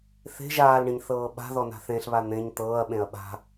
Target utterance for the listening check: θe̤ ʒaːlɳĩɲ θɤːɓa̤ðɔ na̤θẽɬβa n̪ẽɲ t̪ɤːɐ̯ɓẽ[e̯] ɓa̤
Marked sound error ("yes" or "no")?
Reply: yes